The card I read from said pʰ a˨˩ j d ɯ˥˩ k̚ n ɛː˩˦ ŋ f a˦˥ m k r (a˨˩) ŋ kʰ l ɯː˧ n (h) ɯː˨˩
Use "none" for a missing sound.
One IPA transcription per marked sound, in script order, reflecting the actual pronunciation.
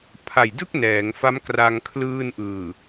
a˧, ʔ

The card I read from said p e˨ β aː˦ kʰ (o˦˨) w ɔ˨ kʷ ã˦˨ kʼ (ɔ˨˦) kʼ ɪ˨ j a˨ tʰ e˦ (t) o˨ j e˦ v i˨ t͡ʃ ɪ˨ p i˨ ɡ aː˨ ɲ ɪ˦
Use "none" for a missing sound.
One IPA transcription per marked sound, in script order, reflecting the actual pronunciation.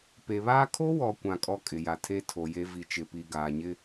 o˦, ɔ˦, tʰ

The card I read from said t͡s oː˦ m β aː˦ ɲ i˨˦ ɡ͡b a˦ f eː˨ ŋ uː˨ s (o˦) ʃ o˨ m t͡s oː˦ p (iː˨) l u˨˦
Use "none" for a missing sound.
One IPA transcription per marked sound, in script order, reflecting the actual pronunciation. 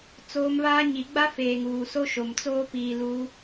o˦, iː˨

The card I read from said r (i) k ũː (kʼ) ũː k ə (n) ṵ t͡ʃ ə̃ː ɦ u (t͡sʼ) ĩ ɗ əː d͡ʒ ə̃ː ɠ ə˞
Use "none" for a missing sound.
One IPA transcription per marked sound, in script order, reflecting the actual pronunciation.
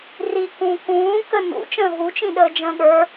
i, k, n, t͡ʃ

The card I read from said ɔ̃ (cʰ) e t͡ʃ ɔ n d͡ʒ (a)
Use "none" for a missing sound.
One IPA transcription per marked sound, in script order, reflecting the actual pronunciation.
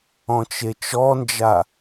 t͡ʃ, a

